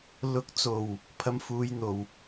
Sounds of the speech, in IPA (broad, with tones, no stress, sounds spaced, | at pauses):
l ʊ˨˥ k̚ t͡s o˨˩ w | pʰ ɐ˧ m f uː˨˧ j n̪ o˨˩ w